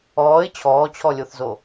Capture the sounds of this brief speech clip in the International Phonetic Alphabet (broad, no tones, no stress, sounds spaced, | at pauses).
ɔː ɪ̯ t͡ɕʰ ɔː t͡ɕʰ ɔ lʲ o θ z o